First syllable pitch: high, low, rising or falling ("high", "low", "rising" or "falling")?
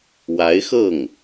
rising